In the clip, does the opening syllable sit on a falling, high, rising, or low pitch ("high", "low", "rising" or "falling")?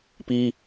high